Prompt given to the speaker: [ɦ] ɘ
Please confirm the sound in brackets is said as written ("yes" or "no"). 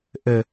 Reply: no